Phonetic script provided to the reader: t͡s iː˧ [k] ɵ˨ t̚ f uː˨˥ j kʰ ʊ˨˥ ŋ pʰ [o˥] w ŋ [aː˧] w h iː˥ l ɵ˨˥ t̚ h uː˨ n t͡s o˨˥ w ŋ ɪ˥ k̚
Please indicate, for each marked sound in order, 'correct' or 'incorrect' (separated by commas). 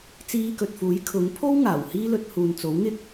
correct, correct, incorrect